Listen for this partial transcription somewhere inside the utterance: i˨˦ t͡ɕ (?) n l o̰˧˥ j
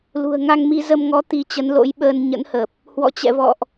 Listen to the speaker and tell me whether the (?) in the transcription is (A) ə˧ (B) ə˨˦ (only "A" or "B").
B